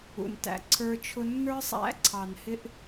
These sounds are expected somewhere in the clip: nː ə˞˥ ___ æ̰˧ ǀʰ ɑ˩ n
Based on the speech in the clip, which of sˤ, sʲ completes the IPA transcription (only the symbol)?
sˤ